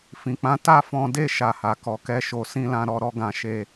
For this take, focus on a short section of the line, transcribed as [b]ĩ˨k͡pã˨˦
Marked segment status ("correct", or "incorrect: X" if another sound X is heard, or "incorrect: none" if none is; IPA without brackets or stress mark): incorrect: f